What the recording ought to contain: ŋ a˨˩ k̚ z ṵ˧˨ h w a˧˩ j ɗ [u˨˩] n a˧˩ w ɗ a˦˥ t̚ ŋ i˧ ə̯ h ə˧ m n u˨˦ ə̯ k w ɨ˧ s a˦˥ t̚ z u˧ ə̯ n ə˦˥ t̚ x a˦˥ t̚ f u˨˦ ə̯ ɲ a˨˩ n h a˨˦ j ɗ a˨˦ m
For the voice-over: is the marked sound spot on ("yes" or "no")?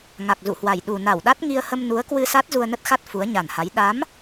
yes